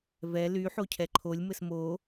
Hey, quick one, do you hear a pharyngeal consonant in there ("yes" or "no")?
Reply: yes